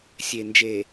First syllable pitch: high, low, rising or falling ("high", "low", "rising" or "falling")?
low